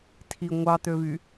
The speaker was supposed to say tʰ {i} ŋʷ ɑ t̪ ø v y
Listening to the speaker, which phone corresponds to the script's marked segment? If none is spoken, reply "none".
i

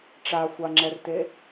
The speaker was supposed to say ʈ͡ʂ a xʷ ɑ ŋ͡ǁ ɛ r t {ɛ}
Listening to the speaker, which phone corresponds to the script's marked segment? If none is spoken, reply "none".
e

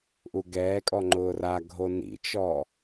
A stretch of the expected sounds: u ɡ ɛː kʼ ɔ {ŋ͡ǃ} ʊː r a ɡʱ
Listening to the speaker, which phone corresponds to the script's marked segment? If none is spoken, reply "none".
ŋ͡ǃ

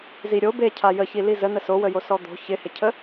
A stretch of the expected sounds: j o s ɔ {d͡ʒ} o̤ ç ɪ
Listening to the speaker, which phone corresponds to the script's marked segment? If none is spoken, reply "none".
d̪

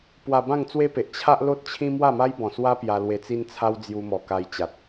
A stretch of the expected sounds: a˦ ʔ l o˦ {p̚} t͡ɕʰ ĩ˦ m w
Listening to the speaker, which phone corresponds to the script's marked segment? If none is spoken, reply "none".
t̚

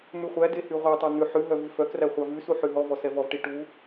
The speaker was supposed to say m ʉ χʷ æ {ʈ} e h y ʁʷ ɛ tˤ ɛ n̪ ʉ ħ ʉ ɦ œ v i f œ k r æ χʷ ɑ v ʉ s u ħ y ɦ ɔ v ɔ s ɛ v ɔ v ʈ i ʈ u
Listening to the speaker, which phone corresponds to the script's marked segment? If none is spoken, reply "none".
d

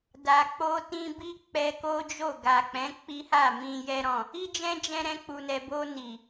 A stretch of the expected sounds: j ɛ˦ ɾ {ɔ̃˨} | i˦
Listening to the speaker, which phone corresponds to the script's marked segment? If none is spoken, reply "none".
ɔ̃˦˨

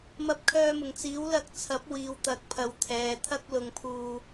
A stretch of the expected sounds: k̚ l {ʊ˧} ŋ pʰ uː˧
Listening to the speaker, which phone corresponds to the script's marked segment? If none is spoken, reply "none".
ʊ˧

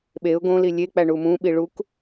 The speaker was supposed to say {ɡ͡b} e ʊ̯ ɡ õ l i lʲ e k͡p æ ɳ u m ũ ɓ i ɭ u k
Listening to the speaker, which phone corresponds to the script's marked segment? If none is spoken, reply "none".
ɓ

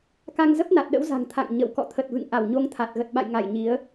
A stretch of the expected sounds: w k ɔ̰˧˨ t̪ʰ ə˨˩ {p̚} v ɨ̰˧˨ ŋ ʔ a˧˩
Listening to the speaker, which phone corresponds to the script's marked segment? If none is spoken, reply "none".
t̚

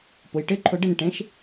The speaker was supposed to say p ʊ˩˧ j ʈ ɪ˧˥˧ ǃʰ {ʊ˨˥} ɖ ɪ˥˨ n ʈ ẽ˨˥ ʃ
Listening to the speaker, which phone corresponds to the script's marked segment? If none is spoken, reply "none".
ʊ˧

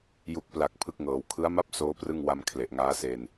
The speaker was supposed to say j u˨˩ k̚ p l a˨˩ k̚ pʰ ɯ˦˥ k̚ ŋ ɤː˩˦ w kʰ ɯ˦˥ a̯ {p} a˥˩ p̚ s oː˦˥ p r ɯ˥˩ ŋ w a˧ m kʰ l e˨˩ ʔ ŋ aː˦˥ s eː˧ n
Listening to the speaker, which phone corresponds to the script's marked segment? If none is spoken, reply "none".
m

